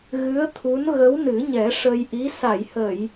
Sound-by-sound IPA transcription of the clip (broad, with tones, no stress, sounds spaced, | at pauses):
ɣ ɨ˧˥ ə̯ t̪ʰ u˧˥ n ɣ ə˧˥ w n ɨ˨˩˦ ɲ ɛ˨˩˦ ʂ ə˧ j ʔ i˧˥ s a˨˩˨ j h ə˨˩˨ j